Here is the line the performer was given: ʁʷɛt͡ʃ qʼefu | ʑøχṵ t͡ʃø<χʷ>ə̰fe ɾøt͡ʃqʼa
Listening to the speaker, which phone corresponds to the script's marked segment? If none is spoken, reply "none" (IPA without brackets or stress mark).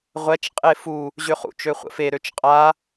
χʷ